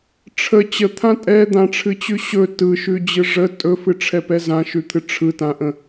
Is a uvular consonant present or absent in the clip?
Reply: absent